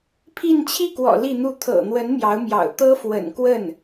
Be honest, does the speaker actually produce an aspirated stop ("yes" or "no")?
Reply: yes